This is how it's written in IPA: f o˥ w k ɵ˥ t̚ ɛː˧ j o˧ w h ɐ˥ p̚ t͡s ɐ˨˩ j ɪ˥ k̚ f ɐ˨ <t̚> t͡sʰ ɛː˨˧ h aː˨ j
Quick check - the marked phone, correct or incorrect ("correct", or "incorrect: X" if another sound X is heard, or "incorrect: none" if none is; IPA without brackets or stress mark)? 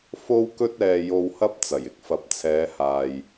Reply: incorrect: p̚